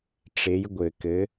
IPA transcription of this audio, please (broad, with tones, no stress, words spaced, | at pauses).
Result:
ʈ͡ʂe˨˥jɡʷɘ˨˩kɘ˨˥